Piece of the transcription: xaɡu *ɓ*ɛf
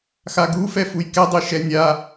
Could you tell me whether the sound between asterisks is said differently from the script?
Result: yes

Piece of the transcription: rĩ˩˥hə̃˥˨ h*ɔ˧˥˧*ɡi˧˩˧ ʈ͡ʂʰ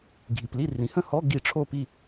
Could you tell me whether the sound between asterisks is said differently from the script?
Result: no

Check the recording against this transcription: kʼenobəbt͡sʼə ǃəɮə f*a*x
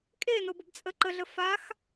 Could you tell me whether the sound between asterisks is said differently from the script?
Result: no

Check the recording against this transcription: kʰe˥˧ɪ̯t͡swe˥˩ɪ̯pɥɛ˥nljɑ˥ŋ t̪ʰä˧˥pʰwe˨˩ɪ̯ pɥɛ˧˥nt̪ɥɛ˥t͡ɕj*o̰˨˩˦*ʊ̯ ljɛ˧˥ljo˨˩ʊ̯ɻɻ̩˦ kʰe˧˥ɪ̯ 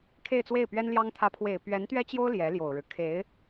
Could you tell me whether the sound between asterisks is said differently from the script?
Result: yes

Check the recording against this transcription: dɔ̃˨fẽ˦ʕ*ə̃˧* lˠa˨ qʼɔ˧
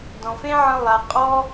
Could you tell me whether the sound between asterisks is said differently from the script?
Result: no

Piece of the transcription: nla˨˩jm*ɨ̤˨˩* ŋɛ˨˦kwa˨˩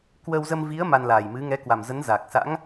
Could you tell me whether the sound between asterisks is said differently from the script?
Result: yes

